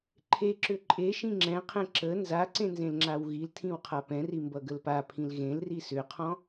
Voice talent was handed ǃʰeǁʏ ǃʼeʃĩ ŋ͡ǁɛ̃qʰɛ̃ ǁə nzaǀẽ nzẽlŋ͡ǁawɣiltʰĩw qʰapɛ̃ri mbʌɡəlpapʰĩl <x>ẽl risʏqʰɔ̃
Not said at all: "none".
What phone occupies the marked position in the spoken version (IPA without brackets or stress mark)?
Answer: ɣ